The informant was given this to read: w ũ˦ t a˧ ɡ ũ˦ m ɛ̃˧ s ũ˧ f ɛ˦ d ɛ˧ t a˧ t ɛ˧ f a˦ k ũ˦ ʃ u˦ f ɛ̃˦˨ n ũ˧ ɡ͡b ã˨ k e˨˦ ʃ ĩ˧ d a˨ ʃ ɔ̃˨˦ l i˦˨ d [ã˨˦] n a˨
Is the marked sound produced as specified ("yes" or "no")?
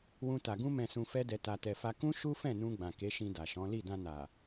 no